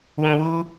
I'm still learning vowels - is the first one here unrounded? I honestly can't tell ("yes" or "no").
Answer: no